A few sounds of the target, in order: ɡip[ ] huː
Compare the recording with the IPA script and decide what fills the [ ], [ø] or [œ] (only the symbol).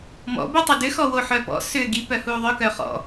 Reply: œ